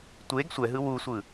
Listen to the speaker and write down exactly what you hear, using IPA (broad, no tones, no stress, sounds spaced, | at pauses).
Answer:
tʷ e ɡ sʷ ɛ ɦ ɯ w u sʷ ɯ